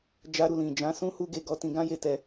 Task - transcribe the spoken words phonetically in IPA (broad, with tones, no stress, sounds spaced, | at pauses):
d͡ʒ a˧ ɾ u˨ l ĩ˨ d͡ʒ ã˨˦ s ũ˦ h u˦ ɡ e˧ ɡ ɔ˧ t ĩ˧ ɡ ã˦ j e˧ t ɛ˧